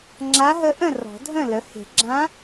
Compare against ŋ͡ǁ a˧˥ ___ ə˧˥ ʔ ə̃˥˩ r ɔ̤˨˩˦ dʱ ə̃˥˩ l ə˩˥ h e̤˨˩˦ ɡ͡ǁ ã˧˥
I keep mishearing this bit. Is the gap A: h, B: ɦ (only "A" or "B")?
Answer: B